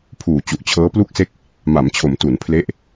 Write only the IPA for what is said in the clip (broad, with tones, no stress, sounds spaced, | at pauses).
pʰ uː˨˩ t͡ɕ u˨˩ ʔ t͡ɕʰ ɤː˦˥ p l u˥˩ k̚ s e˥˩ k̚ | m a˩˦ m t͡ɕʰ o˩˦ m t u˩˦ n pʰ l e˦˥ ʔ